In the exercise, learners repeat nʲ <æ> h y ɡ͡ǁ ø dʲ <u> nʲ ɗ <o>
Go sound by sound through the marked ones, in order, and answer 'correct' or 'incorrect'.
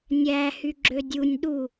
correct, correct, incorrect: u

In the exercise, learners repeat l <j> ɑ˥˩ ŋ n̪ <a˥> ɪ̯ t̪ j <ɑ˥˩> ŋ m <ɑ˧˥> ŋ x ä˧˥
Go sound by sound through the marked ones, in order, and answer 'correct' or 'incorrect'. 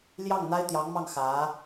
correct, correct, incorrect: ɑ˧˥, incorrect: ɑ˥˩

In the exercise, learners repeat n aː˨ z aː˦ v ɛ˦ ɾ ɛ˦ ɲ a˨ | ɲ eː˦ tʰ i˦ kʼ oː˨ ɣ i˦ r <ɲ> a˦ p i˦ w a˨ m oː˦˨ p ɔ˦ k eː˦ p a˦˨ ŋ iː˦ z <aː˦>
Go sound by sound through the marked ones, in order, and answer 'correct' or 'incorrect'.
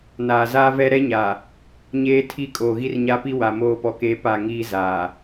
correct, incorrect: aː˨

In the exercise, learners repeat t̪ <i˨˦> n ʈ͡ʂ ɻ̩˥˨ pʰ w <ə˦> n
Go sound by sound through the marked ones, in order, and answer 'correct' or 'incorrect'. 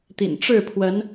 incorrect: ḭ˨˩, incorrect: ə˨˦

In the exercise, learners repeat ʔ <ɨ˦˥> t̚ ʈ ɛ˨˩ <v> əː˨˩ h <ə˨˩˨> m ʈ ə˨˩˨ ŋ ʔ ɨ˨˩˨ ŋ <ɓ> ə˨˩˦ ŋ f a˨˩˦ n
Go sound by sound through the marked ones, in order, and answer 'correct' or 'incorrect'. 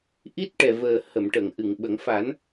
incorrect: i˦˥, correct, correct, correct

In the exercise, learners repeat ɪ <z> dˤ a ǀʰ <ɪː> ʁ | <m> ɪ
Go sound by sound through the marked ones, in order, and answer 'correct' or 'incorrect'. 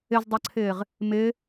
correct, correct, correct

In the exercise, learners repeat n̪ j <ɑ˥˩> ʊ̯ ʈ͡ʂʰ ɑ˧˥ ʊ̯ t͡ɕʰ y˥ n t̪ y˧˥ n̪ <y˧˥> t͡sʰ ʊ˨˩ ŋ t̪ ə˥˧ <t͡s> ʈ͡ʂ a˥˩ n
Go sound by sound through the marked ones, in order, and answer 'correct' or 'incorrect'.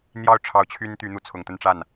correct, incorrect: u˧˥, incorrect: n

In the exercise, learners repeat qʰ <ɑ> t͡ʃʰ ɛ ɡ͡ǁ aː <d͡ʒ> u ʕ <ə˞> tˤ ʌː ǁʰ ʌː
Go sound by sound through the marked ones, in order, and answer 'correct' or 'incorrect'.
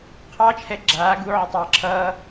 correct, incorrect: ɡ, incorrect: ə

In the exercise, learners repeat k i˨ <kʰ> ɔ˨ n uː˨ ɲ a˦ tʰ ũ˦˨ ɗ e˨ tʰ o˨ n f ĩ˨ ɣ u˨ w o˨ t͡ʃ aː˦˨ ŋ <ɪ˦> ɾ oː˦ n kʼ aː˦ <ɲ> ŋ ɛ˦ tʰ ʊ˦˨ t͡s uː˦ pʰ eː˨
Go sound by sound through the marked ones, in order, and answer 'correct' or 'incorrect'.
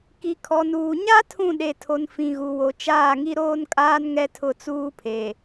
correct, incorrect: i˦, incorrect: n

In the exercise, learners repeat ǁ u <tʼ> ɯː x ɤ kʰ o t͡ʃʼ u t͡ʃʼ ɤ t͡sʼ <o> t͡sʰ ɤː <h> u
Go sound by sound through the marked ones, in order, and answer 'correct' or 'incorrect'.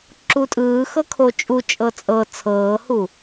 correct, incorrect: ɤ, correct

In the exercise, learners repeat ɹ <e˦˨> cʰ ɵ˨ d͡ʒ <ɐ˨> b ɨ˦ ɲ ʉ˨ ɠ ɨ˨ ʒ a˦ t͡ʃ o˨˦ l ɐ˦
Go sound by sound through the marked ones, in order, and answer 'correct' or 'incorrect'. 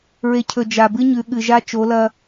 incorrect: e˨, incorrect: a˨

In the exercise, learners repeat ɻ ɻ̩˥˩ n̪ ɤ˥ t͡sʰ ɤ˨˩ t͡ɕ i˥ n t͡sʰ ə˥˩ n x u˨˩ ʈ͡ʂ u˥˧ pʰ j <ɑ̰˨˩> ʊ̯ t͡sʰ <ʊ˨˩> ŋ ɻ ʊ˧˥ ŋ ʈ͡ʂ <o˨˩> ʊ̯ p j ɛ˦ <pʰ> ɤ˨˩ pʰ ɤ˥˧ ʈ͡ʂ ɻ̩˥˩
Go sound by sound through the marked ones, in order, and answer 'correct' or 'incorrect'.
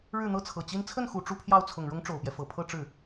incorrect: ɑ˥˩, correct, correct, incorrect: f

